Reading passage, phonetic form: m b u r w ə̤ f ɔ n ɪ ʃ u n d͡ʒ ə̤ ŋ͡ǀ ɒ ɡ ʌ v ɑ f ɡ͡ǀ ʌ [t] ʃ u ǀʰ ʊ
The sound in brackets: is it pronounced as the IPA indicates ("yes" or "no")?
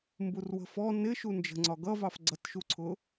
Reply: yes